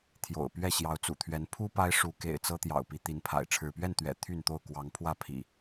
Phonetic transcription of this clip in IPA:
t̪ʰjo̰˨˩ʊ̯ pɥɛ˥˨ɕjɑ˨˦ʊ̯ t͡sṵ˨˩t̪ʰɥɛ˨˦n pʰu˦ pa˦ɪ̯ʂu˨˦kḛ˨˩ɪ̯ t͡sɤ˦t̪jɑ̰˨˩ʊ̯ pi˨˦t̪i˨˦npʰa̰˨˩ɪ̯ ʈ͡ʂʰɻ̩˥˨ pɥɛ˥˨nt̪ɥɛ̰˨˩ t̪ʰy˥˨nt̪o˥˨ʊ̯kwɑ˨˦ŋ pʰwä˥˨pʰḭ˨˩

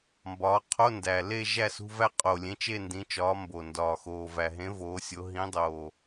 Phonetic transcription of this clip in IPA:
mbɒː˨˦ qʰo˧˥˧ndæ˨˩le˥˧ ʒæ˥˧sṳ˧˥˧væ˥˧ qʼo˨˩lʲẽ˨˦ t͡ʃe˥˧ndĩ˨˦ t͡ʃɒː˨˦mbo˨˩ ndɒː˨˩xoː˨˩væ˨˩ ɦẽ˨˦ voː˨˦sʲo˨˦ ɦĩ˨˦dˤoː˨˩

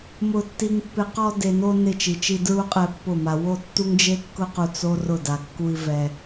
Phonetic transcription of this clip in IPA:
mʊ˧tːi˧ŋpːɪ˧ qɔ˧de˨no˧ nɪ˦˨t͡ʃi˨t͡ʃi˧ dɹu˦ qʼɛ˧pːʊ˦˨ ma˨ wo˦˨tːu˦ŋd͡ʒe˦ kːʊ˧qu˨ t͡so˦ rʊ˦˨ da˨kːu˧i̯ vɛ˧

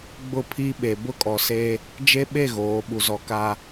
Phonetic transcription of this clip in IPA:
ɡ͡bʊ˦˨pʰi˦ɓe˨ bʊ˦kʼɔ˨ se˦ | d͡ʒe˦ɓe˦˨ ɣoː˨˦ɓu˨zɔ˨ ka˨

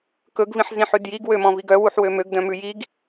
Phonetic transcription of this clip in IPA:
kɵɡvĩħzĩħʉ djiɡwømɔ̃viɡ œwuħwø møɡdœ̃mʉ jiɡ

